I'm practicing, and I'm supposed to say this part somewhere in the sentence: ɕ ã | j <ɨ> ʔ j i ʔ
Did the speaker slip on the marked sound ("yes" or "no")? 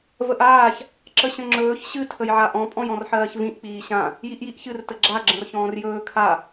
yes